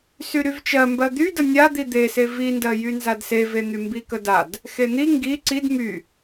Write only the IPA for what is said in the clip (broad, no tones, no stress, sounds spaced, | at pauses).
s y ɾ y v t͡ʃ ɜ m b ɜ d̪ y d ə nʲ a d̪ i d̪ e s e v i n d ɜ j y n z a d s e v e n̪ y m b i k ə d a d | x e n̪ i ŋ ɡ i ǀ i d m y